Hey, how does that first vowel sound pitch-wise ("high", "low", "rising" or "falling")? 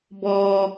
high